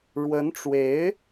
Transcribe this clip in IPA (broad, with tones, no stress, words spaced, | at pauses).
ɻwə˧˥nʈ͡ʂwe˧˥ɪ̯